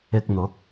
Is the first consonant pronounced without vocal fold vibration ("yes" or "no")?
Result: yes